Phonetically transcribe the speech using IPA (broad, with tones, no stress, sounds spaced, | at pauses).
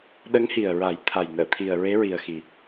ɗ ə˧˥ ŋ h i˨˩ ə̯ ɹ a˨˩˦ j t̪ʰ a˨˩ j n əː˨˩˨ t̪ʰ i˨˩ ə̯ ɹ e˧˥ ɹ i˨˩ ə̯ x i˨˩